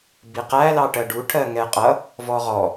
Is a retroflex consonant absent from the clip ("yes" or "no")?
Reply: no